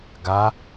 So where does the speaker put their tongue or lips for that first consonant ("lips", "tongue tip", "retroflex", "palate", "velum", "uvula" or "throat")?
velum